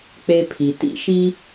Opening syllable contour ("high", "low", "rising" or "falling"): high